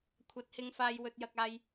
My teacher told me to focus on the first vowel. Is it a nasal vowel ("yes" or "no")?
no